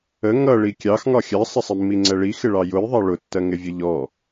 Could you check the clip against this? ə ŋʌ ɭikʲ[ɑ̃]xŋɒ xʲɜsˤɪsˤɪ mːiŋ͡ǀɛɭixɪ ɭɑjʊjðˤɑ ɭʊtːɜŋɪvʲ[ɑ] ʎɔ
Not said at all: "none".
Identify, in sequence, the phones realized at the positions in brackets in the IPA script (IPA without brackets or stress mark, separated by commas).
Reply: ɑ, ə